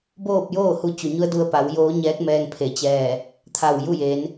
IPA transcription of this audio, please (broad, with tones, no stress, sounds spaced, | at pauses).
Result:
b oː˥˨ p̚ j oː˥˨ h u˧ t͡ɕ u˩ ɲ u˧˥ ə̯ d u˧ ə̯ p a˩˧ w j oː˧˥ ɲ ɛː˧˥ k̚ m ɛː˧ ŋ pʰ e˩˧ t͡ɕ ɛː˧˩ | t̪ʰ a˧˩ w j u˥˨ j e˩˧ n